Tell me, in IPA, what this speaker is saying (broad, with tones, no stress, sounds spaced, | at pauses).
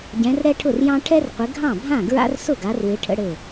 ɟ ɛ̃˨˦ r ɾ ɛ˥ ʈʰ ʊ˥˩ r j ɑ̃˥ ʈʰ ɛ˥ r qʷ ɪ˨˦ ɡʱ ɑ̃˥˩ bʱ ã˥˩ ɡ ɹ a̰˥ r s ʊ˥˩ ɡ a˨˦ r w ɪ˨˦ ʈʰ ə̰˥ ɽ ɘ˥˩